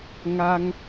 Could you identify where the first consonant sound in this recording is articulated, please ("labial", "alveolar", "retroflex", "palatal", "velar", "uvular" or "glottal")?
velar